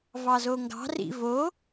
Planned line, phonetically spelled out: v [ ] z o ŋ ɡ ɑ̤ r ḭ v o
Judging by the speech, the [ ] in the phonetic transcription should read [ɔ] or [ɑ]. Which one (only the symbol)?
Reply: ɑ